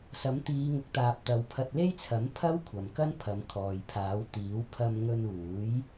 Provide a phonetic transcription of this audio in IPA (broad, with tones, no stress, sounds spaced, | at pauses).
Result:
s ɐ˨˥ m t̪ iː˨˧ ŋ ʊ˨˥ k̚ t̪ aː˨ p̚ t̪ ɐ˨˧ w pʰ ɐ˧ t̚ l e˥ j t͡sʰ ɐ˨˥ m pʰ ɐ˥ w kʷʰ ɐ˨ m k ɐ˥ n pʰ ɐ˨˧ m kʰ ɔː˨ j pʰ aː˨˥ w t̪ iː˨˥ w pʰ ɐ˧ m ŋ ɵ˧ n uː˨˥ j